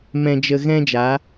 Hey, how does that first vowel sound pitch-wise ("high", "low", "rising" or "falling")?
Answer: low